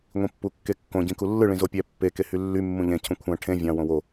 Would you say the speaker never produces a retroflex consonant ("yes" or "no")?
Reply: no